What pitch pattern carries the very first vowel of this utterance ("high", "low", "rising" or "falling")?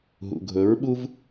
low